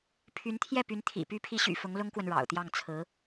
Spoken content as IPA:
pʰ y˧˥ n t̪ʰ j ɛ˥˩ p y˧˥ n t̪ʰ ḭ˨˩ p y˧˥ pʰ i˧˥ ɕ y̰˨˩ f ʊ˧˥ ŋ l ʊ˥ ŋ k w ə˨ n ɻ ɑ̰˨˩ ʊ̯ t̪ j ɑ˥˩ ŋ t͡sʰ ɹ̩˧˥

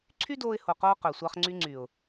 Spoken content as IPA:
ǀʰ y˦ d oː˧ ɪ̯ h o˨ q oː˧ q ø˨ sʷ ɑ˧ χ ŋ͡ǀ y˧ ŋ͡ǀ y˨ ʊ̯

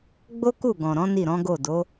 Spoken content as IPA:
ɡ͡b o˦ k u˦˨ ɡ ɔ̃˨ ɾ ɔ̃˨˦ n i˦˨ ɾ ɔ̃˨˦ ɡ o˦˨ d o˨˦

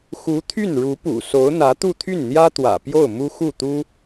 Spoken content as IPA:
x u˧˥ t̪ʰ y˥˩ n ɻ u˧˥ p ṵ˨˩ s o˧˥ ʊ̯ n̪ ä˧˥ t̪ u˥˧ t̪ʰ y˥˩ n n̪ j ä˥ t̪ w ä̰˨˩ p j o˥˩ ʊ̯ m u˥ x u˥˩ t̪ u˥

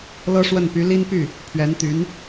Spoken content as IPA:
l ɤ˥ ʂ w ə˥˩ n p y˧˥ l i˥ n p y˥˩ | pʰ ɥ ɛ˧˥ n t̪ y˧˥ n

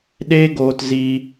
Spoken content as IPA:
ɗ eː˦ ɡ oː˧ t z i˧

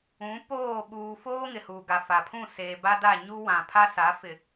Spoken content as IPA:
ũ˨˦ p oː˦˨ ɓ uː˨ f oː˦ ŋ ɪ˨ h uː˨ ɡ a˨ f a˨ pʰ ũ˦˨ s eː˨ b a˦ d a˦˨ ɲ u˦ w ã˨ pʰ a˦ s a˨˦ f ɪ˨

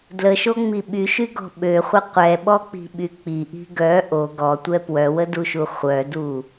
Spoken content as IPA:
d l ə ʃ o ŋ͡m i ɓ y ʃ y ɡ ɔ̤ ɓ ø χʷ ə qʷ ɛ ɓ ɔ k͡p i̤ ɓ y k͡p i ʔ i̤ ɡ œ ʔ o ɡ ɔ tʷ ɛ p w œ w ə d u ʃ u χʷ œ d u

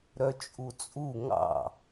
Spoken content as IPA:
ɾ œ t͡ʃʼ u t͡sʼ u ŋ ɑ̰

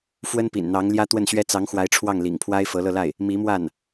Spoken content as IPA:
f w ə˥ n p ḭ˨˩ n n̪ ɑ˧˥ ŋ l j ä˥ t̪ w ə˥˩ n ɕ ɥ ɛ˥ t͡s ɑ˧˥ ŋ x w a˧˥ ɪ̯ ʈ͡ʂʰ w ɑ˥˩ ŋ l ḭ˨˩ ŋ pʰ w a˥ ɪ̯ f ɤ˧˥ l ɤ˥˧ l a˥˩ ɪ̯ | m i˧˥ m w a˥˩ n

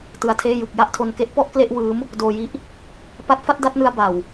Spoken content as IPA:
t ɯ˧ a̯ tʰ eː˥˩ j ɯ˨˩ k̚ j a˥˩ ʔ tʰ o˧ n k e˦˥ ʔ p ɔ˥˩ ʔ k l e˥˩ ʔ w ɯː˦˥ m | d oː˧ j i˦˥ ʔ | p a˦˥ t̚ f a˥˩ t̚ d a˥˩ t̚ n ɯ˧ a̯ b a˨˩ w

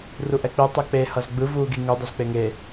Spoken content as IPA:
r u ʔ ɛ k͡p i tˤ ɛ k͡p e h ʌ z ɡ͡b ɯ v uː ɡ i ŋ u dˤ ʌ z k͡p e ŋ e

